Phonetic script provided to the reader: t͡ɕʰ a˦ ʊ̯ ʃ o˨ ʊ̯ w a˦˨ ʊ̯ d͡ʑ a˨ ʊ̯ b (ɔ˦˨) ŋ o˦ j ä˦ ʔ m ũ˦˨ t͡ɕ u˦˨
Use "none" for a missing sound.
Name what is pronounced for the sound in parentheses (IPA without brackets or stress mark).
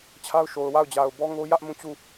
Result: ɔ˦